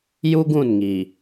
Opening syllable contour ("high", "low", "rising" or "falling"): high